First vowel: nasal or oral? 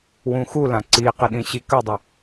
nasal